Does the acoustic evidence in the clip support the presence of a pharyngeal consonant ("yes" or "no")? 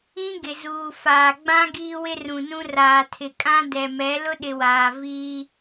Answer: no